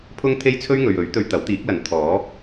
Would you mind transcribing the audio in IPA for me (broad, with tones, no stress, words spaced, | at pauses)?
pʰʊ˥ŋt̪ʰe˥jt͡sʰɵ˥ɥ ŋɵ˨ɥɵ˨˥ɥ t̪ɵ˧ɥt̪ɐ˨˥wt̪iː˨˥k̚lɐ˨˥n t̪ʰɔː˨˥